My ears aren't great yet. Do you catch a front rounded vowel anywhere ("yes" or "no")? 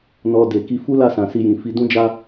no